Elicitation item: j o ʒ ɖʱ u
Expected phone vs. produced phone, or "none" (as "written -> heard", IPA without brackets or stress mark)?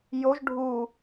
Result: none